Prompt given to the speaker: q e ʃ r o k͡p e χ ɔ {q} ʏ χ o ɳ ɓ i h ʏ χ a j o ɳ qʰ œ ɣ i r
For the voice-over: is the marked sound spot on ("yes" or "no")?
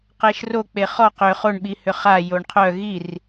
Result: yes